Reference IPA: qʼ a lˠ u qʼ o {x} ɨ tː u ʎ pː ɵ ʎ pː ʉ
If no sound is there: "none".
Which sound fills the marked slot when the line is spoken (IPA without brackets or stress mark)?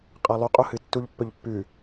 h